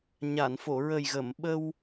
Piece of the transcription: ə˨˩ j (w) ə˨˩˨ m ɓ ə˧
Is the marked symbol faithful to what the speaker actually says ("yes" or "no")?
no